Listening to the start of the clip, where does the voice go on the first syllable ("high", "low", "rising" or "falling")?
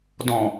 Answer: low